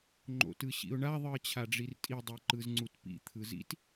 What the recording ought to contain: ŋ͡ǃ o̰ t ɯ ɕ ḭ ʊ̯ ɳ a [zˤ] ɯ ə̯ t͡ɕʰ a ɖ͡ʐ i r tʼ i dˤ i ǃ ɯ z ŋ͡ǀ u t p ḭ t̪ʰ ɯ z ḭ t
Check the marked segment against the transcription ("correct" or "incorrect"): incorrect